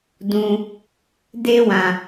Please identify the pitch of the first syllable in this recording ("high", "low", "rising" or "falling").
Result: high